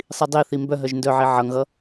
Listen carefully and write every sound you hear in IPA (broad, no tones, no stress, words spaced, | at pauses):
sˤidˤiθi mbœ ɦœʒndœʕi ʕʌŋɣʌ